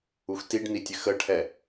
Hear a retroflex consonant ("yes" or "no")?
yes